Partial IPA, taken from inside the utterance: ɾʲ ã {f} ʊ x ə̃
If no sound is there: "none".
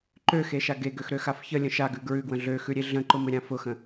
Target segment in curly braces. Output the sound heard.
f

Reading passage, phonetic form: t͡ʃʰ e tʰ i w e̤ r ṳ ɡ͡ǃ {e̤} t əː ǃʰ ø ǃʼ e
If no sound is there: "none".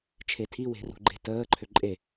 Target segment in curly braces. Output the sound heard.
e̤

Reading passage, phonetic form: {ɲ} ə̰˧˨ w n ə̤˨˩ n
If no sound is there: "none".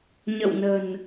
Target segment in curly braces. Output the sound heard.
ɲ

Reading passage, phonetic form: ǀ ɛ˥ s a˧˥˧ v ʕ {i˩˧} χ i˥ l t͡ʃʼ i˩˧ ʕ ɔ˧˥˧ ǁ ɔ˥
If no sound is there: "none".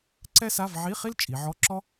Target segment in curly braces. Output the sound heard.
i˧˥˧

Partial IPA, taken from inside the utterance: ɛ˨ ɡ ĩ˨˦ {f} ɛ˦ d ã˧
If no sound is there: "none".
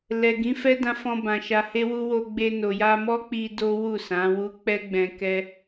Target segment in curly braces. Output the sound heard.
f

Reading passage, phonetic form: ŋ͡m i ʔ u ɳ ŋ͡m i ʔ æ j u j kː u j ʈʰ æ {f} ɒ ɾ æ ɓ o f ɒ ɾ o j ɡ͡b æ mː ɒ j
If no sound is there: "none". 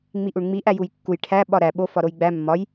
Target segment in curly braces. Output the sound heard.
ɓ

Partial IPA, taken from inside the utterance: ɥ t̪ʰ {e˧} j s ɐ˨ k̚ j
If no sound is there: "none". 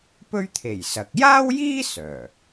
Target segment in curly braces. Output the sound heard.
e˨˩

